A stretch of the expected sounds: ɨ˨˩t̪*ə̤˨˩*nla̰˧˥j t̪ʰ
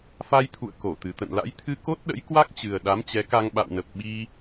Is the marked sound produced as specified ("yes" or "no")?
no